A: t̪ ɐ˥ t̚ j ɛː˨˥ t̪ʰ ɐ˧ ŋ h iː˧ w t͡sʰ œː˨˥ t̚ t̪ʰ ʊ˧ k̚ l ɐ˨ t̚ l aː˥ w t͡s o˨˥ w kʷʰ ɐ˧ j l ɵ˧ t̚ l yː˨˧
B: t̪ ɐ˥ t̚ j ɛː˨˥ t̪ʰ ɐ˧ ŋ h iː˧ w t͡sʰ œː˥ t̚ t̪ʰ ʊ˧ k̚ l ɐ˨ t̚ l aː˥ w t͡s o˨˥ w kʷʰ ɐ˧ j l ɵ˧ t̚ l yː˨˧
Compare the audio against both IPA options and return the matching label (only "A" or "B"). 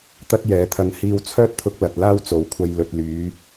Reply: B